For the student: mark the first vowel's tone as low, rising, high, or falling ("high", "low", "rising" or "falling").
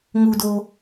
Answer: low